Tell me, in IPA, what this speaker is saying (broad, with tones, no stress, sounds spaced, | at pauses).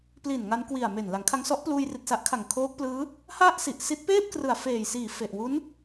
p l i˨˩ n ŋ a˧ n k w i˨˩ a̯ m e˨˩ n l a˩˦ ŋ kʰ a˧ ŋ s ɔ˦˥ ʔ p l uː˧ j r i˨˩ t̚ s a˦˥ ʔ kʰ a˨˩ ŋ kʰ oː˦˥ k̚ p l ɯː˦˥ | h a˥˩ ʔ s i˨˩ ʔ s i˦˥ t̚ p eː˥˩ p̚ k r ɯ˨˩ a̯ f eː˨˩ j s iː˨˩ f e˨˩ ʔ w u˦˥ n